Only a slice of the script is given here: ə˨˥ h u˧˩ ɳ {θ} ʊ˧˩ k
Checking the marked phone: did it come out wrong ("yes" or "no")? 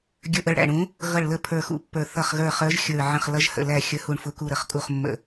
yes